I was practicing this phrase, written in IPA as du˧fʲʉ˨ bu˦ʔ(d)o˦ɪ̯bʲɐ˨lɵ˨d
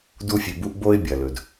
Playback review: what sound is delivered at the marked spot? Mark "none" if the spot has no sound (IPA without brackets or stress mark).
b